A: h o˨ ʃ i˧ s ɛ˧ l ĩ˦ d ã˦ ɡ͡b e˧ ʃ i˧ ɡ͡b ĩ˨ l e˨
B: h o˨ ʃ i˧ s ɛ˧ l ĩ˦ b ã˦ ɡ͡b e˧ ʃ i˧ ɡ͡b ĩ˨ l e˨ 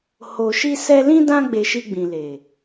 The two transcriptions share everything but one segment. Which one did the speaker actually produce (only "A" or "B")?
A